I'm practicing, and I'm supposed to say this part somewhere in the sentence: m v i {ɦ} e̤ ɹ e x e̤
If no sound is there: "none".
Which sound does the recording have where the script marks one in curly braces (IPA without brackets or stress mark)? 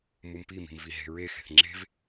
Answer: ɦ